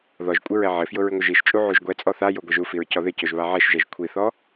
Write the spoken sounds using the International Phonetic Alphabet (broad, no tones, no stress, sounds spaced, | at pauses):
ð ɔ ʒ kʷʼ ɪ ɹ ɛ ʕ ɪ f j ʊ ɹ ɪ ŋʷ ɪ ʒ i ʃ t͡ʃʼ u ʕ u ʒ ɡʷ ɛ t͡sʼ ɔ θ a j o ɡʷ ɛ ʒ u f i ɹ c ɔ ð ɪ c o ʒ β a ʕ ɛ ʃ ʒ ɛ ʒ kʷʰ i θ ɔ